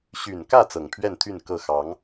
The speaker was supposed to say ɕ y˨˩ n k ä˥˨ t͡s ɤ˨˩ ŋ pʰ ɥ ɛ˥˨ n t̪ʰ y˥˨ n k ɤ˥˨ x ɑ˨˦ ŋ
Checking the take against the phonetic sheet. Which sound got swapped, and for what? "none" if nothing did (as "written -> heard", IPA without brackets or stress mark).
none